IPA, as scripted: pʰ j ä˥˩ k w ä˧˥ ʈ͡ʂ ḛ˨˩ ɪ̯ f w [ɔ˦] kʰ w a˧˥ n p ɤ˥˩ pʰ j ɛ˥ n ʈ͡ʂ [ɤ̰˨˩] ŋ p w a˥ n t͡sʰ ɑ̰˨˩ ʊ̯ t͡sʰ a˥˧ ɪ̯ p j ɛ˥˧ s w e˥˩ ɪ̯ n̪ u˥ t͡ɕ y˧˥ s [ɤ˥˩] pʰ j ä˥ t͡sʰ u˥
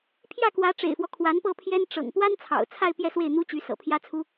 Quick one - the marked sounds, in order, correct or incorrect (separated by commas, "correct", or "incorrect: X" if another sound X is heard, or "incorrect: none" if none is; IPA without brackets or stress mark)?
correct, correct, incorrect: ɤ̰˨˩